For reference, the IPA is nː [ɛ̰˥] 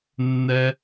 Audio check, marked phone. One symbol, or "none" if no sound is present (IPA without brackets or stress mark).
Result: ɛ˥